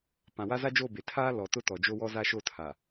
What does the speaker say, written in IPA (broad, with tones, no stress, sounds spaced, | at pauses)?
p ã˨ w a˦ z a˦ d͡ʒ o˦˨ b e˨ tʰ aː˦ l ɔ˨ t ʊ˦ t ɔ˨ d͡ʒ o˦ w ɔ˦ z a˦ ʃ o˦˨ tʰ a˨